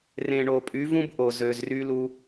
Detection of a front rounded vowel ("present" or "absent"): present